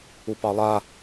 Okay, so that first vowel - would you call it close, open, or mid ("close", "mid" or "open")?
close